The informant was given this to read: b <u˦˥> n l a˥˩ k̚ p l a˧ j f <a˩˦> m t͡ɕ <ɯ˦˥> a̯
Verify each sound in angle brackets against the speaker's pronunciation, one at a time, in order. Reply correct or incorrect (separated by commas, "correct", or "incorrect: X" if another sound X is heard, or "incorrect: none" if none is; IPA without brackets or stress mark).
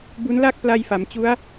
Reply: correct, correct, incorrect: u˦˥